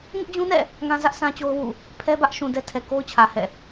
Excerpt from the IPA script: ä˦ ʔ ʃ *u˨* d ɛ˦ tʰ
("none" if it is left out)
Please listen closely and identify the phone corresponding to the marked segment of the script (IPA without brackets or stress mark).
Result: ũ˨